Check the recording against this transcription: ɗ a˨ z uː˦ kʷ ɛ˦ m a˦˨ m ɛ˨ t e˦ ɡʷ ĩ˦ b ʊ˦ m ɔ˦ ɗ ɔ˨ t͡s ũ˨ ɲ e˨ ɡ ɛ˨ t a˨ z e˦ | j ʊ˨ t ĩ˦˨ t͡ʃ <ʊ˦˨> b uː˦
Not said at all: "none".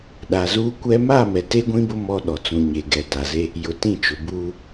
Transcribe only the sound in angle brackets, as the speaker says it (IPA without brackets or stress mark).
ʊ˨